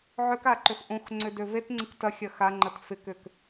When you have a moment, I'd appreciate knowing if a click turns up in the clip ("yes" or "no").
yes